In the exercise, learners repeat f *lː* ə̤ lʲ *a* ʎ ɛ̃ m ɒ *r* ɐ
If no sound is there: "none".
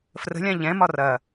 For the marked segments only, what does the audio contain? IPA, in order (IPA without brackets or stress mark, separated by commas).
r, ã, r